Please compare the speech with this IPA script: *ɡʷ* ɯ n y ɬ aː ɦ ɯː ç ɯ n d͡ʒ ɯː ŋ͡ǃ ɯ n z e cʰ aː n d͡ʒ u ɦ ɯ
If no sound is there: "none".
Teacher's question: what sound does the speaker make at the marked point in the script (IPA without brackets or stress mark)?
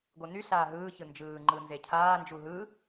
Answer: ɡʷ